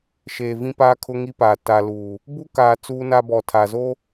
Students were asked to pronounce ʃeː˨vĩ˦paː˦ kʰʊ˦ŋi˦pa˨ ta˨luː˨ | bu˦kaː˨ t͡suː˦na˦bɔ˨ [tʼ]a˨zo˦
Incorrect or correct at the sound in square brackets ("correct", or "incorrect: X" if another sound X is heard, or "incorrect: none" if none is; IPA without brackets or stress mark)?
incorrect: tʰ